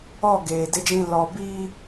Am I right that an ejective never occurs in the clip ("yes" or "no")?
yes